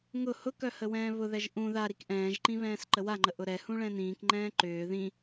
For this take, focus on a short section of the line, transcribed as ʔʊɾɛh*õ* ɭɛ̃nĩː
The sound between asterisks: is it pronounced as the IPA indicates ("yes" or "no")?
no